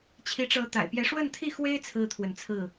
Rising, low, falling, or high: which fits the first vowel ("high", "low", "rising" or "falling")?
rising